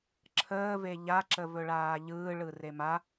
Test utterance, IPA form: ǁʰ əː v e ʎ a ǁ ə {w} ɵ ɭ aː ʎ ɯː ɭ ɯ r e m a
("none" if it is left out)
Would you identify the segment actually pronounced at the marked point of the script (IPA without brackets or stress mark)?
v